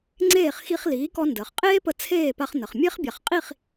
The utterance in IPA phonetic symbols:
ŋ͡ǀ eː˥˩ χ x i˧ χ l iː˩˥ k ɔ˧ n d əː˩ χ qʼ eː˥ p ə˧ t͡sʰ eː˥˩ p a˧ χ n ə˩ χ mʲ e˥ χ bʲ a˩ χ qʼ i˥˩ χ

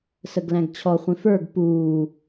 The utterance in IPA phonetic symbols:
s ə ɡ l æ̃ ɡ t͡ɕʰ ɔ χʷ ĩ f ə˞ ɡ p uː

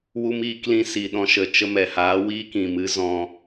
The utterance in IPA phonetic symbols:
w u˧ m iː˧ k l ĩ˧ s i˨ ɗ ɔ̃˧ ʃ ə˨ t͡ʃ ə˧ m ɛ˨ h aː˨˦ w iː˦ k ĩ˨ m ɨ˦ z ɔ̃˧

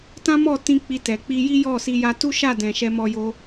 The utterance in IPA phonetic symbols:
t ã˦ m ɔ˦˨ t ĩ˧ k͡p i˧ t ɛ˨ k͡p i˧ j i˦ j ɔ˦˨ s i˧ j a˧ t u˦ ʃ a˦˨ d ɛ̃˨ ʃ ɛ˧ m ɔ˧ j o˧

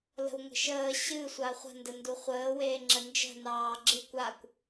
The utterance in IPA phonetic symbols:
l ə̤ w ŋʷ ə̤ ʃ əː ɕ ɨ sʷ a χʷ ə̤ n d ə n d u χʷ əː w eː ŋ͡ǁ ə n d͡ʒ ə̤ n ɑː ɡ͡ǁ ɨ kʷ a kʷ

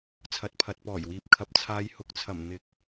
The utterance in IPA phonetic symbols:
t͡sʰ ɐ˨ t̚ pʰ ɐ˨ t̚ p ɔː˨˩ j w iː˨ p̚ kʰ ɐ˨ p̚ t͡sʰ aː˨˧ j h ʊ˨ k̚ t͡sʰ ɐ˨˩ m n̪ ɪ˨˥ k̚

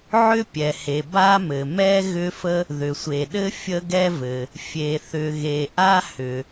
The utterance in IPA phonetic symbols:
ʕ ʏ˥ pʲ ɛ˩ h e˩ b a˥ m ɘ˩ m ɛ˥ ɣ ʏ˥ f ə˥ | ð ʏ˩ sʷ e˩ ɗ ɘ˥ fʲ ə˥ ɡ ɛ˥ v ɘ˩ | fʲ e˩ θ ʏ˩ ɣ e˩ ʔ a˥ h ʏ˩

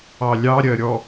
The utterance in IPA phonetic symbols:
ɑ lʲ ɑ ɾʲ ɜ ɾʲ ɔ

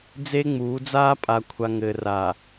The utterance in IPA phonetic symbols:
d͡z e˦ ŋ͡m uː˨˦ d͡z aː˦ pʼ a˨ kʷʰ a˨ ŋ ɘː˨ r aː˨

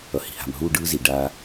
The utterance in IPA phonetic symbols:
ʌ˨ h i̤˨ h a̤˨ m ɦ uː˦˨ ɖ ɯː˦ z i˨ ɖ a˦

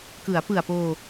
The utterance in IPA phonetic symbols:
k ɯ˩˦ a̯ p ɯ˨˩ a̯ p oː˧

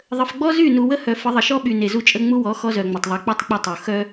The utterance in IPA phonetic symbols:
ðˤ ə˨ f ɡ͡b ɔ˦ z y˦˨ n u˨ w ə˦ h œ˨ f ə˨˦ ðˤ ə˨ ʃ ɔ˦ ɓ y˨ n e˨ z u˦ t͡ʃʼ ə˦ ŋ͡m u˦ w ɔ˨˦ x ɔ˦ z œ˨ ŋ͡m ə˨ tˤ ðˤ e˨ k͡p ɔ˦ tˤ k͡p ə˦ tˤ o˨ x œ˦

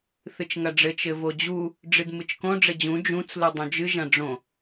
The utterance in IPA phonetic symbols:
θ ɨ t͡ʃ ŋ ɐ ɖ͡ʐ ɘ t͡ʃ ɘ v o d͡ʑ u | ɖ͡ʐ ɨ d m ɨ t͡ʃ k õ ɖ͡ʐ ɘ d͡ʑ ũ d͡ʒ ũ t͡s l u dˤ ũ d͡ʒ ɨ ʒ ɐ̃ ɖ͡ʐ õ

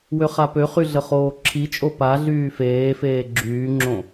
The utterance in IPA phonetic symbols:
w ø χ a p ø χ y ɮ ə χ oː ǁʰ i t͡ʃʼ o p a ɮ yː f eː f eː ɡ͡ǁ yː ŋ͡ǁ õ

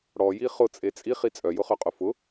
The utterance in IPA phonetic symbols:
ɽ ɔ j i χ ʊ t͡sʼ e t͡sʼ i χ i t͡sʼ œ j ʊ χ œ qʼ ʊ f ʊ

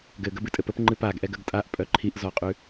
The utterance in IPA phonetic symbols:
ɡ ɘ ɡ ə b ɨ tʼ ɘ p ə p ŋ͡ǃ ɨ p a ɡ ʔ ɛ ɡ ə ɡ tʼ a ʔ pʼ œ ǃʰ i ʔ z ɔ qʼ ʉ

